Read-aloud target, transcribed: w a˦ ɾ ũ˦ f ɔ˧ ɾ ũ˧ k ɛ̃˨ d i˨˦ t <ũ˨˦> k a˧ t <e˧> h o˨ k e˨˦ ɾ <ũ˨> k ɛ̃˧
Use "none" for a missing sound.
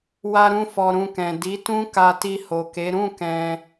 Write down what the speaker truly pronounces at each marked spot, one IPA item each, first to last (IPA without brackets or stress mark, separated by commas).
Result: ũ˦, i˧, ũ˦˨